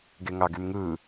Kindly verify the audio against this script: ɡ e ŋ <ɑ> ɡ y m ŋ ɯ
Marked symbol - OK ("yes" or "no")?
yes